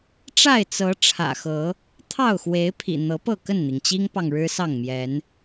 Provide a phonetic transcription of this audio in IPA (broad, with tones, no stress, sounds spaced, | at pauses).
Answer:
ʈ͡ʂ a˥˨ ɪ̯ t͡s ɤ˨˦ ʈ͡ʂʰ ä̰˨˩ x ɤ˨˦ | t̪ʰ ɑ˥˨ ʊ̯ x w e˨˦ ɪ̯ pʰ ḭ˨˩ n̪ ɤ˨˦ p ɤ˥˨ k ə˥˨ n n̪ i˩ ŋ t͡ɕ i˦ ŋ p ɑ˨ ŋ ɻ ɻ̩˦ s ɑ˥˨ ŋ m j ɛ˨˦ n